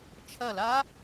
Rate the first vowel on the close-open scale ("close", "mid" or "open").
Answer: open